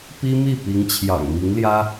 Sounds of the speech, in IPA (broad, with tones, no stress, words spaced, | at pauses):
pi˥mi˥˩ pi˧˥ŋt͡ɕʰjɑ̰˨˩ŋmi˧˥ŋljä˥